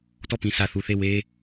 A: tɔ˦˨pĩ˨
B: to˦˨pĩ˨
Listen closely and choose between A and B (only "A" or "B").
A